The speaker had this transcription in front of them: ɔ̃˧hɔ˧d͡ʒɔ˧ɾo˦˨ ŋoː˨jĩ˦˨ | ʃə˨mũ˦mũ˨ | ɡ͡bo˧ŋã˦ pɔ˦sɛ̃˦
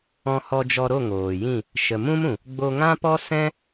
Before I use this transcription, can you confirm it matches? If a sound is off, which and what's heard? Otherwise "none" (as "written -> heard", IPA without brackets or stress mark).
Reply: none